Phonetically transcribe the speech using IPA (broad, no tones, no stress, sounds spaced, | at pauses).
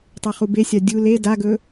tˤ e χ u b e sʲ a dʲ u l e d a ɡ ɵ